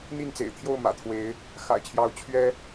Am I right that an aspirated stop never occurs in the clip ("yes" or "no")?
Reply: no